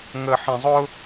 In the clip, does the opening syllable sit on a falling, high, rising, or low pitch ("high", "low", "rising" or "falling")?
low